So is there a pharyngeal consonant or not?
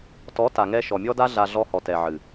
yes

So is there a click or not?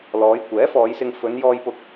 no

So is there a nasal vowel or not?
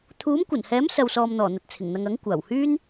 no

